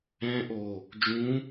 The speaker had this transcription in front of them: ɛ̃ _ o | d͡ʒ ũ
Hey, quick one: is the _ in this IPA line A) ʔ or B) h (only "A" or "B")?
A